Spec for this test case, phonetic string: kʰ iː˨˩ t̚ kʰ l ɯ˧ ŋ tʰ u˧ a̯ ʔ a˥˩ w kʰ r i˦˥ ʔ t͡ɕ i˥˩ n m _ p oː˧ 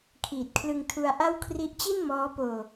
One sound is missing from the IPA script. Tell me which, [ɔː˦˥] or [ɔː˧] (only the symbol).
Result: ɔː˦˥